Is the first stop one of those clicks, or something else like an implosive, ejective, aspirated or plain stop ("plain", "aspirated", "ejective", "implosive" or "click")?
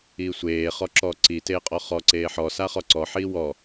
click